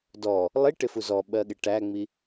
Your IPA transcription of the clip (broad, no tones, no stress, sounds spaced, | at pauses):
d ɔ | lˠ i ʈ ɪ f u z ɔ ɓ ɜ ɠ ɪ ʈ æ ŋ͡m i